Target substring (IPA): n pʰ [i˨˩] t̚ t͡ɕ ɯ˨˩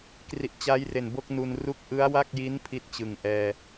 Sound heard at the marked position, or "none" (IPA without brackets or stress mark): i˥˩